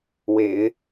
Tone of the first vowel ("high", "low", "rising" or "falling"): low